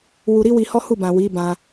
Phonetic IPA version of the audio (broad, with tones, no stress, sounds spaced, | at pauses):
w u˧ ɾ i˦ w i˧ h ɔ˦ h u˦˨ b ã˨ w i˨˦ b ã˧